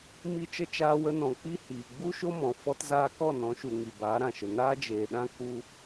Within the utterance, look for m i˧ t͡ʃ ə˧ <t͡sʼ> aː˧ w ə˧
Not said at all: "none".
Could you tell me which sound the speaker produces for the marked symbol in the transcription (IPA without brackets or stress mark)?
t͡ʃ